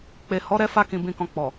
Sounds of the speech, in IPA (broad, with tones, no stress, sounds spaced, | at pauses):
k͡p e˨ h ɔ˨˦ ɾ ɛ˧ f a˧ k ĩ˨ b ĩ˨ k ɔ̃˨ k͡p ɔ˨